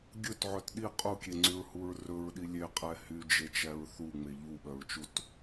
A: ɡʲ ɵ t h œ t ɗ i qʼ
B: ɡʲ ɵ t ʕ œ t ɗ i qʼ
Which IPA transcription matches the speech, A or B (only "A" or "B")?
B